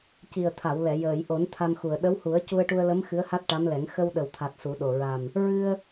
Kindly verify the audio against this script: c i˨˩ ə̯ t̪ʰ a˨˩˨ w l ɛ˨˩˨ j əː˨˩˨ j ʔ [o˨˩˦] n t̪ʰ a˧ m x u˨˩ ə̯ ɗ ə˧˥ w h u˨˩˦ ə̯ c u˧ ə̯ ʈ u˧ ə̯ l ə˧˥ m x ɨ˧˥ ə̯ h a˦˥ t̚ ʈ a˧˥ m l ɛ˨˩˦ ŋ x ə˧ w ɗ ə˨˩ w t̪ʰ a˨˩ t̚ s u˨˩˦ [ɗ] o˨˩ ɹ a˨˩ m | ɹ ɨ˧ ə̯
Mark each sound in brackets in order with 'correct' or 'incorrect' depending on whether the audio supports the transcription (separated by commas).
correct, correct